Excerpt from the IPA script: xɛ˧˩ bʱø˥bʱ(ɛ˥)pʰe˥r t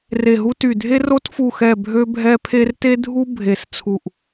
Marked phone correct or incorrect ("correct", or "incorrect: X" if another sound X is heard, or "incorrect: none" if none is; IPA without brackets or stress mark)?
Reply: correct